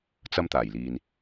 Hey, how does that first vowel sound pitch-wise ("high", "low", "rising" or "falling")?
high